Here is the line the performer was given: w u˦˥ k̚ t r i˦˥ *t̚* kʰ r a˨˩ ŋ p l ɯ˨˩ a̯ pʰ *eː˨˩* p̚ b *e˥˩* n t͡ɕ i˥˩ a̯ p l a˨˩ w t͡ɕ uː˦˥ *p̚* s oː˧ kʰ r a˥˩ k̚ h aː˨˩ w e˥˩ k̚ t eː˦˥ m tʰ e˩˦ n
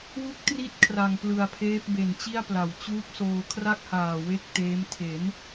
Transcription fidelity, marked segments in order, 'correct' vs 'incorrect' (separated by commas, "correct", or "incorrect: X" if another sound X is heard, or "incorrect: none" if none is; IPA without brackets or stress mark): correct, incorrect: eː˦˥, incorrect: e˨˩, correct